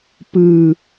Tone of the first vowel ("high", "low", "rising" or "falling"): low